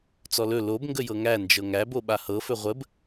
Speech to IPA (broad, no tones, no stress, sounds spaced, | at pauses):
t͡s ɔ l ɵ l o b ŋ ɡ ə j ɤ ŋ æ n d͡ʒ ɤ ŋ æ b o ɓ a h ɤ f ɵ ʁʷ ə b